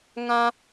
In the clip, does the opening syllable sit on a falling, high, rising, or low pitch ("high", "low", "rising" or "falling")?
high